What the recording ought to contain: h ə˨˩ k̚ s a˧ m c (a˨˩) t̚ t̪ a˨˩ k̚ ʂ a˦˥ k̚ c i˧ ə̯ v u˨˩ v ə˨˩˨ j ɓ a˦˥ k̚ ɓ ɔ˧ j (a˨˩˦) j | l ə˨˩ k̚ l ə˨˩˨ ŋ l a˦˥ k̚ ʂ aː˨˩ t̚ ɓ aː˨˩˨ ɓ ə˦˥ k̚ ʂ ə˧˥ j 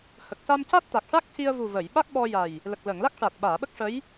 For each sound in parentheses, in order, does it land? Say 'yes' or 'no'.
no, no

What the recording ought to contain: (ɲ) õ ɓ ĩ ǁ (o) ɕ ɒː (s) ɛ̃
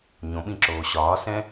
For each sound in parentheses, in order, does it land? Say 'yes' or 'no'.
yes, no, yes

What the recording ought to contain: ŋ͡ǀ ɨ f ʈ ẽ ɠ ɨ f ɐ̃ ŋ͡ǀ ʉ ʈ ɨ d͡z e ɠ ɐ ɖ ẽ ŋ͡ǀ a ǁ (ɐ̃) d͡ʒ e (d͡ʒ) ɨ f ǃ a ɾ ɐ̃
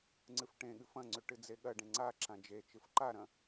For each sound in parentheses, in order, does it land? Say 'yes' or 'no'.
no, no

